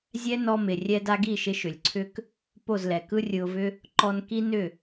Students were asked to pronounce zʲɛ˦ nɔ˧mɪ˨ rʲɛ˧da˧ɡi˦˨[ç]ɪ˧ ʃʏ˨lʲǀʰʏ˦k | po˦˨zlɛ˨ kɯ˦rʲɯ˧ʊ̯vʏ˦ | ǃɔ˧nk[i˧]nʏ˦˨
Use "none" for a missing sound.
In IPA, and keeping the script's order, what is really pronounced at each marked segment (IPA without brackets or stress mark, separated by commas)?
ʃ, i˦